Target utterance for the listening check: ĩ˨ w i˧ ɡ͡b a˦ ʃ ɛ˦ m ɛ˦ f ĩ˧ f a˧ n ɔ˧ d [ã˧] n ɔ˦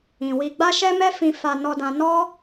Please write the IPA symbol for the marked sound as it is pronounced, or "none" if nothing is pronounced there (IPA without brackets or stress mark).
ã˧